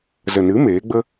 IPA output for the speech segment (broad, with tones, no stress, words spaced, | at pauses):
zə˨nɨ˨˦ meː˨˦ɡ͡bə˦